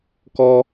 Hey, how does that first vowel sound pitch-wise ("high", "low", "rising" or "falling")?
high